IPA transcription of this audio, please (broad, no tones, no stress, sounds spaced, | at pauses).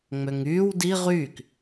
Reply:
ŋ͡m ø ŋ yː w d i ʁ yː k